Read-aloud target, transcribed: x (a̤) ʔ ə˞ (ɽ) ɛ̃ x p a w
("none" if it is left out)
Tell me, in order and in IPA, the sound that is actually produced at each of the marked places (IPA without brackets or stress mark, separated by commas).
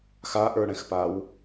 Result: a, ɽ